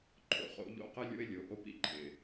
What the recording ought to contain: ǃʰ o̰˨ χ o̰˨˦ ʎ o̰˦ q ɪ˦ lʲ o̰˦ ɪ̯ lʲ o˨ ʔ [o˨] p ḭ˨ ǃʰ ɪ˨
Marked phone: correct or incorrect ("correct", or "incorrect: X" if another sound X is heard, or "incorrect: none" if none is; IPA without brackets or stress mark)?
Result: incorrect: o˦